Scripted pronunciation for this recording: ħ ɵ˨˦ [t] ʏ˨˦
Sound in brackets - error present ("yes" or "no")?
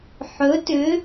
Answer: no